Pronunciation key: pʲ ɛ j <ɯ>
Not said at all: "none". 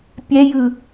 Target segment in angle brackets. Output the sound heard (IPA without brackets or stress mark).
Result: ɯ